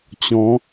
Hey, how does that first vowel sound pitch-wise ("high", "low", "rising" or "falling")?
rising